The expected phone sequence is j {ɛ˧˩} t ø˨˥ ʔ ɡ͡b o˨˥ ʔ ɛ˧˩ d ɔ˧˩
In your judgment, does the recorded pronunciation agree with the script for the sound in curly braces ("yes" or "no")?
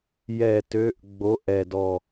yes